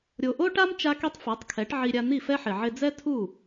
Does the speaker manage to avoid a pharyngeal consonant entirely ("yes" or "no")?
no